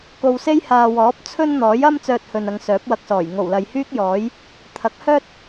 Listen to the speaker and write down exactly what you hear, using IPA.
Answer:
k o˧ w s e˥ j h aː˨ w ɔː˨˥ p̚ t͡sʰ ɵ˥ n n̪ ɔː˨˥ j ɐ˥ m t͡s œː˧ t̚ h ɵ˨ n ɐ˨˧ ŋ s œː˨˥ p̚ w ɐ˧ k̚ s ɔː˨˩ j ŋ o˨˩ w l ɐ˨ j h yː˥ k̚ j ɔː˨˥ j | t̪ʰ ɐ˨˥ k̚ h œː˥ t̚

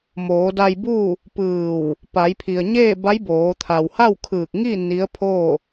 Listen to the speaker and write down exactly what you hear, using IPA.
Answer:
m oː˩˧ d a˧ j b uː˥˨ | p ɯː˧˩ w | p a˩˧ j pʰ i˩ ə̯ ɲ eː˥˨ b a˧˥ j b oː˩˧ t̪ʰ a˩ w h a˥˨ w kʰ ɯː˧˩ k̚ ŋ i˥˨ n i˧˥ ə̯ pʰ oː˥˨

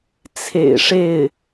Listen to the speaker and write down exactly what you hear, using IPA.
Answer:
t͡sʰ ḛ˨˩ ɪ̯ ʂ e˥˩ ɪ̯

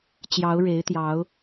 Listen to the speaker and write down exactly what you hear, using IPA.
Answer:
t͡ɕ j ɑ˨˦ ʊ̯ ɻ e˨˦ ɪ̯ t̪ j ɑ˨˦ ʊ̯

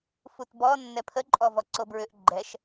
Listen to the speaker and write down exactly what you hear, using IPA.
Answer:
f u t b ɔ nː ɛ pʰ ə ǃʼ ɔ v ɔ ǀ o b ɹ ʏ ʔ ɡ͡ǃ ɛ ʃ

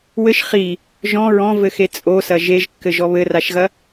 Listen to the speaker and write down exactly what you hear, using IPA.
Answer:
w ɘ ʃ χ i | ʒ ɔ̃ ɹ ɔ̃ v ɘ x e t͡sʼ o s ɐ ʒ e ʒ kː ɘ ʒ ɔ β ɘ r a ʃ ɣ ɐ

